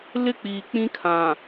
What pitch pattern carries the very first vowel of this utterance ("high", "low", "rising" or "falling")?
high